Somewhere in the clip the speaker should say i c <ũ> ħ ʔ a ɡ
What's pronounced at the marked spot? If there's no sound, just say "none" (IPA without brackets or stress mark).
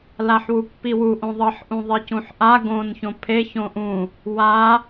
ũ